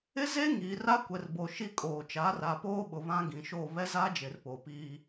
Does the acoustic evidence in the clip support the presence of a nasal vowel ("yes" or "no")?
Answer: yes